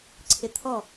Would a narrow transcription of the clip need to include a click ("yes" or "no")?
yes